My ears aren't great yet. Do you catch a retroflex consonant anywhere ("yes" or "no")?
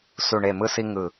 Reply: yes